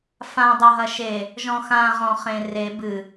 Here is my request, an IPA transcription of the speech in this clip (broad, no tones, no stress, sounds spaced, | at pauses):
f ã dˤ ɐ ɦ ɐ ʃ e | ʒ ɔ̃ x ã ʁ ɔ̃ χ ẽ r e b ɨ